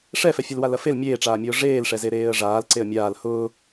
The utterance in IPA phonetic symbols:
ʂ ɛ f ɛ fʲ ɐ l w a l ɐ f e l mʲ eː ʈ͡ʂ aː mʲ ʊː ʐ eː l ʂ ɛ z e ɾ eː ə̯ ʐ aː l ǀ e ə̯ mʲ aː l h ʊː

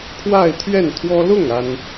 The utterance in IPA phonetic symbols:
kʰ w a˥˧ ɪ̯ t̪ʰ ɥ ɛ˥˩ n t̪ʰ w ɔ˥ l ʊ˥˩ ŋ a˥ n

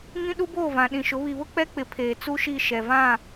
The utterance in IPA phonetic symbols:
ŋ ĩ˦ ɗ u˦ b oː˦˨ v ã˨ ɗ ĩ˨ ʃ ʊ˨˦ β i˨ β ʊ˦ k͡p ɛ˦ k͡p ɪ˨˦ pʰ eː˨ t͡s u˦ ʃ i˦˨ ʃ ɛ˨ v ã˦˨

